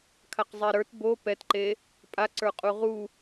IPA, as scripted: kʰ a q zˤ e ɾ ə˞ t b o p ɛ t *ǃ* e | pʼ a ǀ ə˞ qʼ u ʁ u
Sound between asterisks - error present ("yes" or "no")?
no